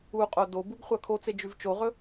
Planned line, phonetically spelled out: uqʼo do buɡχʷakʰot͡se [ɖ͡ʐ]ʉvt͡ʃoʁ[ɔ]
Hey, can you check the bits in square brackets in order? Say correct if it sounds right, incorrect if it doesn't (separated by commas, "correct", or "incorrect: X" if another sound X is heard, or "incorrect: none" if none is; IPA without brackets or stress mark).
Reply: incorrect: d͡ʒ, incorrect: ɵ